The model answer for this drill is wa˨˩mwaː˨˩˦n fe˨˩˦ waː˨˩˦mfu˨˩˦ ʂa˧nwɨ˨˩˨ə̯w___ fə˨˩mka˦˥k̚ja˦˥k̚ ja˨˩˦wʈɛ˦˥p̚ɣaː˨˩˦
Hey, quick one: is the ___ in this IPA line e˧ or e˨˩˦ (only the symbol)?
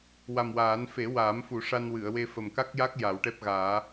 e˧